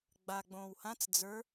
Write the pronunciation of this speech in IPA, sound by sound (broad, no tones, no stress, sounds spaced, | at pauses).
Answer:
ɡ͡b a ɡ͡b õː w h ã t͡s d͡z ə˞